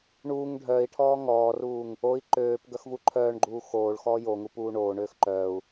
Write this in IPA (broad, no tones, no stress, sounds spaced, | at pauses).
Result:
ɳ uː ŋ ɖʱ œː i̯ ʈʰ ɔː ŋ ɔː r uː ŋ | o i̯ ǃ øː p ɡ œ x v u ǃʰ œː ɳ ɡ͡ǃ uː x oː ɭ x ɔː j o ŋ u p uː ɳ oː ɳ øː x ǃ œː u̯